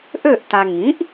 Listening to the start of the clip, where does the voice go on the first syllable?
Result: falling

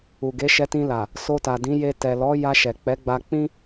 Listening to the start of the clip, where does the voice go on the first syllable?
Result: low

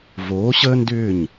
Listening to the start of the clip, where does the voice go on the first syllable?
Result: rising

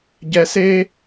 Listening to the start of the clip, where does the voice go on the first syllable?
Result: high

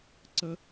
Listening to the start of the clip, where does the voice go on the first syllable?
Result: high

